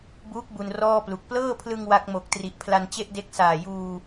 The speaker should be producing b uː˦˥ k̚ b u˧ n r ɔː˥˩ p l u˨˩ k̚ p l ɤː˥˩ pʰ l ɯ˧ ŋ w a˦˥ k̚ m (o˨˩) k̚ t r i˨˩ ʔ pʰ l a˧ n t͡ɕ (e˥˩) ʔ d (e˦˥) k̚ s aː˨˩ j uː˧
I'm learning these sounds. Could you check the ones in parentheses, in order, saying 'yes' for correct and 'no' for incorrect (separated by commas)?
yes, yes, yes